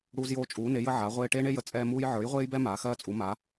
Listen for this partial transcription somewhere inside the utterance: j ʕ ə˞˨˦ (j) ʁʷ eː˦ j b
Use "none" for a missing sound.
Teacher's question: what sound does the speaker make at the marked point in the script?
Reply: j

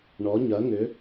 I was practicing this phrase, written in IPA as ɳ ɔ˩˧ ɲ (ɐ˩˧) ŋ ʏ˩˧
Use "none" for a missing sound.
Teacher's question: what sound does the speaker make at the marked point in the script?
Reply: ɐ˩˧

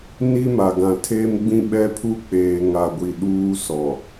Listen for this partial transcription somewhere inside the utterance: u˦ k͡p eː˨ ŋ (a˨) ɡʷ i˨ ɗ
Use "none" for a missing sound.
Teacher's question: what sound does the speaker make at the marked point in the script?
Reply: a˨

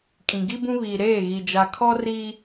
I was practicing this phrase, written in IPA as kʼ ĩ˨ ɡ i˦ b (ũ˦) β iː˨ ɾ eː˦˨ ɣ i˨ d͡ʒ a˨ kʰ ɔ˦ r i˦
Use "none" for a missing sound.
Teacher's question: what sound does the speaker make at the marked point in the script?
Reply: ũ˦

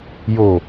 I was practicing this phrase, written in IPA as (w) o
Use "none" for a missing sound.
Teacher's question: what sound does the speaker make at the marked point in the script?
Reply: j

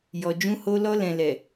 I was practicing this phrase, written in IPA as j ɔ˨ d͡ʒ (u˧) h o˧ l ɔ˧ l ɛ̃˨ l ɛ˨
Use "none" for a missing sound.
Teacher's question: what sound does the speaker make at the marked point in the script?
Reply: ũ˧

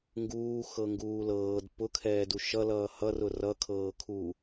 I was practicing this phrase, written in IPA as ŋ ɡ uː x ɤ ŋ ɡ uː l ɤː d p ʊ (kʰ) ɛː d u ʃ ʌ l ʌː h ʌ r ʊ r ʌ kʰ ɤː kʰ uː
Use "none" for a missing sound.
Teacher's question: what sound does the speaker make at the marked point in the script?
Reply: kʰ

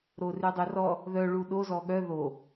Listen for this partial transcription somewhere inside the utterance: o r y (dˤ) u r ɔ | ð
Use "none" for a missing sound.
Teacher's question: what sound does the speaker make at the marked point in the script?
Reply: dˤ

